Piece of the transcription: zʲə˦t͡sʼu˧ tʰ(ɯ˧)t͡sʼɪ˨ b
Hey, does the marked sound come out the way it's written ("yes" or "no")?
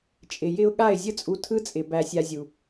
yes